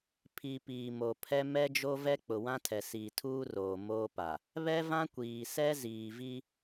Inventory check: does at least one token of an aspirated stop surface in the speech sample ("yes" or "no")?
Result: yes